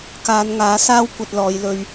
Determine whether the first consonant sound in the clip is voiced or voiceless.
voiceless